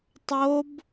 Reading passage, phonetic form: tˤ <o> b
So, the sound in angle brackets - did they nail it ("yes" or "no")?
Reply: yes